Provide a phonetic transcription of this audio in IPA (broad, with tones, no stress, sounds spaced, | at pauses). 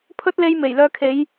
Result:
pʰ ɵ˥ t̚ l e˧ j m e˨˩ j l œː˧ kʰ e˨˧ j